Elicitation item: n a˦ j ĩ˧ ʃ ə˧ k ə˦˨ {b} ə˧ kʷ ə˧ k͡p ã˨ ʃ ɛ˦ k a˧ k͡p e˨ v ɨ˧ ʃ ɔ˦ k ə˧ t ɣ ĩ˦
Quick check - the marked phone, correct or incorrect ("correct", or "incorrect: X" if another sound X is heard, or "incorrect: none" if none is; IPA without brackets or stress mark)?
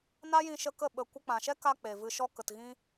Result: incorrect: ɓ